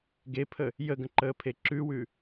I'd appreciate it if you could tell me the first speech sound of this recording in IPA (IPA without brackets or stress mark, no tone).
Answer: ɡ